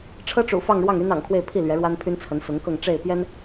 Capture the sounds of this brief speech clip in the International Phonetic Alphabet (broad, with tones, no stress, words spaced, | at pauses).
ʈ͡ʂʰɤ˥ʈ͡ʂṵ˨˩fɑ˥˧ŋɻwɑ˥˩ŋ y˥nɑ̰˨˩ŋkʰwe˥˧ɪ̯ pʰi˥˩ lɥɛ˧˥ɻwa˥npʰy˥nt͡sʰə˧˥n sʊ˧˥ŋkɤ˥˧ŋ ʈ͡ʂe˥˩ɪ̯pjɛ˥n